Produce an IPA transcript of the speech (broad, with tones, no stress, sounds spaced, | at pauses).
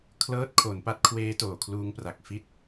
kʰ l ɤː˦˥ t̚ kʰ o˩˦ n p a˦˥ t̚ kʰ w eː˦˥ t oː˨˩ kʰ l uː˦˥ ŋ p r a˨˩ k̚ f i˥˩ t̚